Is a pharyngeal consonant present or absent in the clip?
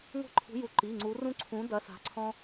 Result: absent